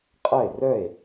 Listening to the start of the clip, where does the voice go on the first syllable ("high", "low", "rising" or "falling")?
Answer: falling